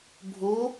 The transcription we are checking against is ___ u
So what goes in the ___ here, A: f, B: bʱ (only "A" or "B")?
B